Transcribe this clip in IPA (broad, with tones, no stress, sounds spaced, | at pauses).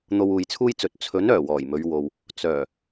n̪ o˧ w uː˨ j t͡sʰ uː˥ j t͡s ɵ˨˥ t̚ t͡sʰ ɵ˨˥ n œː˨˩ w ɔː˨˩ j m ɵ˨˧ ɥ w o˨ w | t͡s œː˨˩